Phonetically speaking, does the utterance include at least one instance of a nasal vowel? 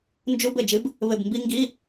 no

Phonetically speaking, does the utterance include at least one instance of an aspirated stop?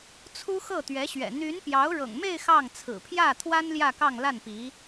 yes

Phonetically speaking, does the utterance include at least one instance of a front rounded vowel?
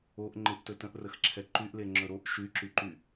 yes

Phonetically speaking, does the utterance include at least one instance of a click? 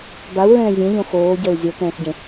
no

